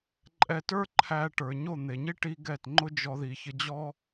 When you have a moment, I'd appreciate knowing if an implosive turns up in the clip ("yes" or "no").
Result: no